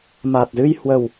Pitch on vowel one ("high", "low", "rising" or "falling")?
low